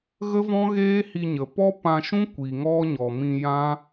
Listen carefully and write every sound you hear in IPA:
ɣə˦vɔ̃˦ɣeː˦hi˧ ɲə˨ pɔ˦pã˧ʃũ˦ kʷi˨ŋɔ˦ɲɔ˨mĩ˧ jã˦

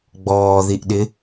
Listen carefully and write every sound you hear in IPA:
ɡ͡bɔːðiʔɗɪ

